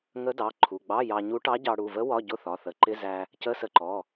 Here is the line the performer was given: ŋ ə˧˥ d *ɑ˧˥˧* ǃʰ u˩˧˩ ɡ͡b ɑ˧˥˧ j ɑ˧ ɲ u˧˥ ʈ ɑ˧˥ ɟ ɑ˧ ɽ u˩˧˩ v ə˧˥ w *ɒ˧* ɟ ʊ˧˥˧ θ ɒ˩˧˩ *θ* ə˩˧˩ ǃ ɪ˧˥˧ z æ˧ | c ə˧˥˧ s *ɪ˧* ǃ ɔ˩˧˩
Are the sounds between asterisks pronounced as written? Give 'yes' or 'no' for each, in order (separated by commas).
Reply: no, no, yes, no